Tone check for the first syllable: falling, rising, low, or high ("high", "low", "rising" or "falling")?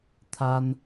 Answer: high